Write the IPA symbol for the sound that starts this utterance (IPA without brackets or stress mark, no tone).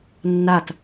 nː